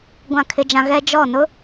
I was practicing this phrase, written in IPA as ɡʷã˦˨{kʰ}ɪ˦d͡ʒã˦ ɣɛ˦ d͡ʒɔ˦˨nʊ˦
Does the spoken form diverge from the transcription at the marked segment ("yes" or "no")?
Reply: no